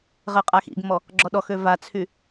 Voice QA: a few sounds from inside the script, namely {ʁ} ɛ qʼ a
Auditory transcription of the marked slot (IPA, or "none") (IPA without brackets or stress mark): ʁ